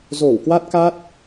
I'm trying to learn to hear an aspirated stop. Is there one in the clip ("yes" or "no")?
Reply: no